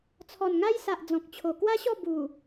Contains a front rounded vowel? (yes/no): no